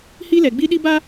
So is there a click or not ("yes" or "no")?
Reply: no